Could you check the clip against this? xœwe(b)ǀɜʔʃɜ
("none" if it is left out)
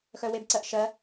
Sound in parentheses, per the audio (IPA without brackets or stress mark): b